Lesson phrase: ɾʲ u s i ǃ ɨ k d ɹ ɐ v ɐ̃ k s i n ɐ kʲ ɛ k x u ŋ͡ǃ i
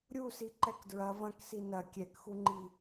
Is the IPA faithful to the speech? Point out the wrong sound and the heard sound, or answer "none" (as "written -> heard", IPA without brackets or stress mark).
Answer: ɨ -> ɛ